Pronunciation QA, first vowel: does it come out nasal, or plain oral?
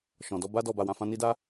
nasal